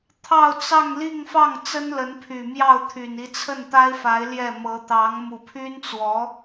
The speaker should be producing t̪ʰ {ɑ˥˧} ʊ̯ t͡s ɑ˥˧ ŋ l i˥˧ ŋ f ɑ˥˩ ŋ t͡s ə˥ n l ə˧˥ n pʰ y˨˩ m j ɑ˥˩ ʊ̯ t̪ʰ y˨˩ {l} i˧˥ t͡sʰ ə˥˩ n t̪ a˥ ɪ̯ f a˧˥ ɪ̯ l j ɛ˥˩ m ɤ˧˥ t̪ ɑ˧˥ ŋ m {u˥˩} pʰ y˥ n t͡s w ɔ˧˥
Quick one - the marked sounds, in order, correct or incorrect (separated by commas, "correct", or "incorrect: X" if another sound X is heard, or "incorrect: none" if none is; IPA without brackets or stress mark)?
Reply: correct, incorrect: n, incorrect: u˨˩